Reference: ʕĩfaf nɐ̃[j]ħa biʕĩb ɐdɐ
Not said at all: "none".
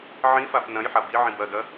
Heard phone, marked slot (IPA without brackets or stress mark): j